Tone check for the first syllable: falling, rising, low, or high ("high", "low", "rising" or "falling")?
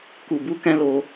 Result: low